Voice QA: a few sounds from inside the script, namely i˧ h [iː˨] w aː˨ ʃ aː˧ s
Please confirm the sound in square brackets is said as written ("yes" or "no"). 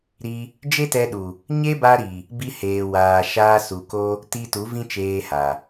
no